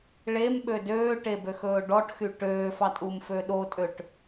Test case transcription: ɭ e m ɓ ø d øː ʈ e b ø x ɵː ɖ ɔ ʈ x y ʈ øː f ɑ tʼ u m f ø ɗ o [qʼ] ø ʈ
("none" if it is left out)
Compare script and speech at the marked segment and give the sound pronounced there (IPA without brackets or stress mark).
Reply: tʼ